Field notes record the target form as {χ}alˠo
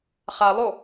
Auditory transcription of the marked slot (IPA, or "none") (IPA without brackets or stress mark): χ